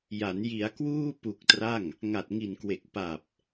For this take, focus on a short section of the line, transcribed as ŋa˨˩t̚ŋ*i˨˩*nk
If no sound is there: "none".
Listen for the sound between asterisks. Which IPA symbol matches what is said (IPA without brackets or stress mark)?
i˨˩